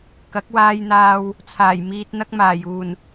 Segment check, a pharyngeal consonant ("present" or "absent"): absent